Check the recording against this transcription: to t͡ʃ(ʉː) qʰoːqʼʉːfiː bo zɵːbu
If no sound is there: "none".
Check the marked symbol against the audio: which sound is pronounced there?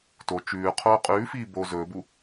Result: ʉː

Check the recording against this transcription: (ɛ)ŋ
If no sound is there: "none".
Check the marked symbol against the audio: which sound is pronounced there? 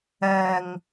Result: ɛ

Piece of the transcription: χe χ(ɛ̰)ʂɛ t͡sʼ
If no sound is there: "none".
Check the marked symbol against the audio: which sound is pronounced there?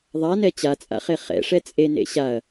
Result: ɛ̰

